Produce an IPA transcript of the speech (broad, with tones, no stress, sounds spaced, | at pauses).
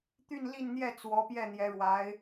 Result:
t̪ y˥˧ n l i˥˧ n n̪ j ɛ˥˩ t͡s w ɔ˧˥ p j ɛ˥˩ n̪ j ɛ˧˥ ɻ w a˧˥ ɪ̯